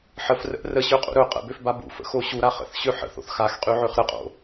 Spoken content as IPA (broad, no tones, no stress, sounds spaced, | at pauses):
ħ ə f r ə̰ ʔ r ə ɕ ø qʼ ṵ ɾ ɵ qʼ ə̰ b ø f b a b ṵ f ə̰ x o ɕ u ɾ a χ ə̰ θ ɕ ø ħ ə̰ θ o̰ θ x a x qʼ y ʕ ø χ ɾ ə qʼ o̰